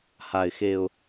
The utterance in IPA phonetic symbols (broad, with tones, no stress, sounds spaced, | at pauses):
h a˨˩ ɪ̯ x e˨˩ ʊ̯